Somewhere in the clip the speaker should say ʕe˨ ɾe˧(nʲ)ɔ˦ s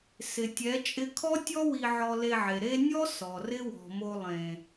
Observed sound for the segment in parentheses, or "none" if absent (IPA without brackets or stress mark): nʲ